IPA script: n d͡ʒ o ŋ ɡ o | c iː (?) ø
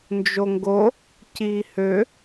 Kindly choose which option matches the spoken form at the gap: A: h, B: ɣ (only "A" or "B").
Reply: A